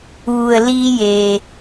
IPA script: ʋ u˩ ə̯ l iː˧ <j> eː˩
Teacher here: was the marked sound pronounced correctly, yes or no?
yes